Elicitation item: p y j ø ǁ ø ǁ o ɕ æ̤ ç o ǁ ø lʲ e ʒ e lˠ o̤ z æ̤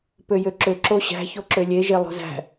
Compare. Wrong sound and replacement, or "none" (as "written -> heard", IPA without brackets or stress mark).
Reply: y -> ø